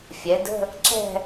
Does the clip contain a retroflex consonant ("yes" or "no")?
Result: no